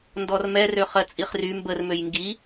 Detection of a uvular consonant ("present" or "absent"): present